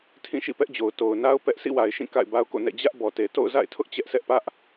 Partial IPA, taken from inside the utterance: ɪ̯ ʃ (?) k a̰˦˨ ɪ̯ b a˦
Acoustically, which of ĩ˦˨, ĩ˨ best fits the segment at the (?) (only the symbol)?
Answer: ĩ˦˨